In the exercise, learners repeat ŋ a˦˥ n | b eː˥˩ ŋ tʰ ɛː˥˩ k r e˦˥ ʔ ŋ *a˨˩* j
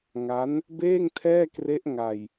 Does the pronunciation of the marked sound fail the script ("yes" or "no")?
yes